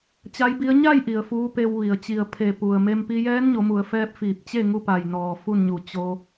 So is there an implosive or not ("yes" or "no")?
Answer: no